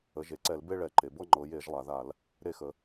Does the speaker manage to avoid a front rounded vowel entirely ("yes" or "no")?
yes